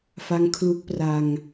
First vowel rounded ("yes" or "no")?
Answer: no